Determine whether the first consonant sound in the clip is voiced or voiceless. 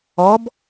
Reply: voiced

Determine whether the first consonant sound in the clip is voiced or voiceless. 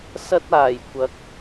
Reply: voiceless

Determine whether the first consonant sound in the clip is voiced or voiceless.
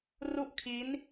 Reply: voiced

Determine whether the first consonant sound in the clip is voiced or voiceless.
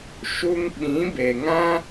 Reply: voiceless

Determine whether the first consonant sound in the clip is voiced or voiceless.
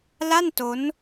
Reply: voiced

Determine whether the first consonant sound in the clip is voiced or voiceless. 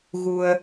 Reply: voiced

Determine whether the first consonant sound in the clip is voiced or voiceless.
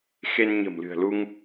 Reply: voiceless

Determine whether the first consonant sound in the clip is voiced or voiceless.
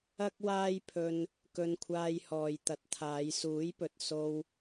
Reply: voiceless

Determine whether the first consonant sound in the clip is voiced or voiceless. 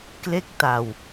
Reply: voiceless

